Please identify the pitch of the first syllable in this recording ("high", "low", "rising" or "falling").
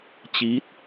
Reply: rising